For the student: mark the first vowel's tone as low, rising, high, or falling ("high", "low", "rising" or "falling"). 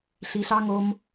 low